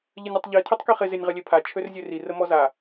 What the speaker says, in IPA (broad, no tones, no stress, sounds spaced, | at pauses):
ʎ ə nʲ ɪ tˤ ʎ i tʰ ø tˤ k i χ ɪ z ɪ nʲ ʁ ə lʲ e pʰ a t͡ʃʰ ø r zʲ ø r i r ə m ɔ z a